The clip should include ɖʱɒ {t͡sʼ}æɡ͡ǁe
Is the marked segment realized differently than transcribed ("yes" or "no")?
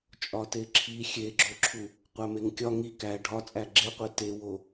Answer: no